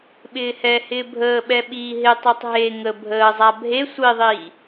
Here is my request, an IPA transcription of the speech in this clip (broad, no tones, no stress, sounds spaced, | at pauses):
ɓ ɪː h ɛ h ɪː bʱ əː ɓ ɛ ɓ iː ɦ ɪ tˤ e tˤ ɦ e ŋ ə bʱ əː zˤ a bʱ e sʷ i ðˤ iː